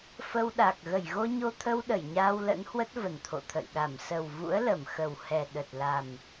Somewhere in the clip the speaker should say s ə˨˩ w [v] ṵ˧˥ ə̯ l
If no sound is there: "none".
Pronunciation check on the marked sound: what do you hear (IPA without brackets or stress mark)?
v